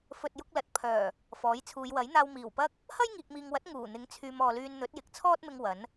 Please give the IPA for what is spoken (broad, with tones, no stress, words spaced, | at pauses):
fɵ˨t̚jʊ˧k̚ lɐ˨˥t̚ pʰœː˨˩ | fɔː˨˥jt͡sʰuː˨˧j wɐ˨˥jn̪aː˧w miː˨˩wpɐ˥k̚ | hɐ˥jŋiː˨k̚miː˨ŋwɐ˨˥t̚ ŋuː˨˩ n̪ɪ˨˥ŋt͡sʰyː˨m ɔː˨lyː˧nn̪ɵ˨˥t̚jɪ˨k̚ t͡sʰɔː˥t̚mɪ˧ŋ wɐ˨˥n